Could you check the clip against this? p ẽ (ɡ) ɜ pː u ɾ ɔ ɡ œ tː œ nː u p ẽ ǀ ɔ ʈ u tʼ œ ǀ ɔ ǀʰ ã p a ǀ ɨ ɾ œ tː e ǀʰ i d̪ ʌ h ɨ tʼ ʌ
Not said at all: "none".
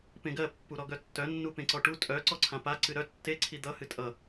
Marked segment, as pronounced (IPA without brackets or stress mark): ɡ